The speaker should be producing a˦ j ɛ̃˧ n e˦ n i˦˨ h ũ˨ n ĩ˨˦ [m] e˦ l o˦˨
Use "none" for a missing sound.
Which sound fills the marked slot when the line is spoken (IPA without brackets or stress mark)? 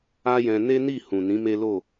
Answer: m